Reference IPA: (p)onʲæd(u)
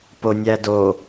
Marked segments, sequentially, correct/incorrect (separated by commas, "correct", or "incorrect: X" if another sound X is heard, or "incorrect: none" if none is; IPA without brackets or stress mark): correct, incorrect: o